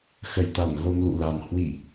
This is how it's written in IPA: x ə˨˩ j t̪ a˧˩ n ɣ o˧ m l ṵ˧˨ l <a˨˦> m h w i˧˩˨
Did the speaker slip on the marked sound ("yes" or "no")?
yes